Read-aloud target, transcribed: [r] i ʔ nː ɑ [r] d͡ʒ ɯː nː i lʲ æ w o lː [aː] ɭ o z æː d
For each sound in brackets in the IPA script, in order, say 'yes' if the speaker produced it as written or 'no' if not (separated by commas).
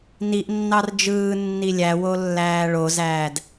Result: no, yes, no